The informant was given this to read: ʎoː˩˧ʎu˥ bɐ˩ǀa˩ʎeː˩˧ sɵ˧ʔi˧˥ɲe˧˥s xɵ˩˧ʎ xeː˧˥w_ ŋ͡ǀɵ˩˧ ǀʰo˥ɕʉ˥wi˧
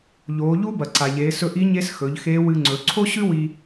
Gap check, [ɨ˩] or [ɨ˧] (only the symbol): ɨ˧